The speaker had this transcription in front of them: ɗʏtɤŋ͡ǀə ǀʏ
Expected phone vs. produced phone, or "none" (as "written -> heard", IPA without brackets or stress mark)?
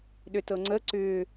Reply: none